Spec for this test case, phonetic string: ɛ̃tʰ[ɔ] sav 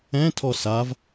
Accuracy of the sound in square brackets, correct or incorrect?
correct